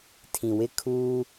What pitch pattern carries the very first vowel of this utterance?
low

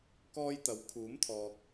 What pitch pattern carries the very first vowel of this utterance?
high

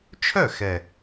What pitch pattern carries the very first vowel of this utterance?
falling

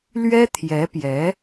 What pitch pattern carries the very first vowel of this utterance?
high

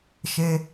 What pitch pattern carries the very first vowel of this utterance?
high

